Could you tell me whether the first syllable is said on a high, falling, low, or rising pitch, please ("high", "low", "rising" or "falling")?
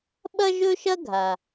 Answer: high